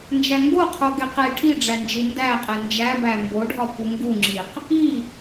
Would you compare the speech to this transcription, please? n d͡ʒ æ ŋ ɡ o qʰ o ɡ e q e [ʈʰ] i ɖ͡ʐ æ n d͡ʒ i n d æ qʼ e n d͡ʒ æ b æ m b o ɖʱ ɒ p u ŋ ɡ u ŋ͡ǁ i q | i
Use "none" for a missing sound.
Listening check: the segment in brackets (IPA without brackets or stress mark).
ʈʰ